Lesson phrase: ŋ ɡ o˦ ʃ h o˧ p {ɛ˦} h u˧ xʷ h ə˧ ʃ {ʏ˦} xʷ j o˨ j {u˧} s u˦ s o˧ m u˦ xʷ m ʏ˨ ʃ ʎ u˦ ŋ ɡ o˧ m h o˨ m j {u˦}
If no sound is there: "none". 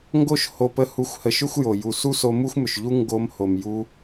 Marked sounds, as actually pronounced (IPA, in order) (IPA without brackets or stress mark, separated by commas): ə˦, ʏ˦, u˨, u˧